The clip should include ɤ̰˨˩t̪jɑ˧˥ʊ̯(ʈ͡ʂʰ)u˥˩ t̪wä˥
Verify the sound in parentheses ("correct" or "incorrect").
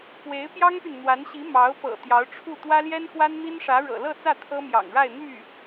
correct